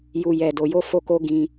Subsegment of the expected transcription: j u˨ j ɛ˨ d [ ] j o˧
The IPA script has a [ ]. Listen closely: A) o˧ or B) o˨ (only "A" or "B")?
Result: B